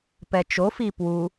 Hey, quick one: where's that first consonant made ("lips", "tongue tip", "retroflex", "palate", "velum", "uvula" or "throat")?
lips